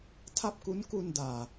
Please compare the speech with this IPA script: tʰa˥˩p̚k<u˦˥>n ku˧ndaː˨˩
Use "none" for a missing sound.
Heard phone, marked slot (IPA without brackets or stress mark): u˦˥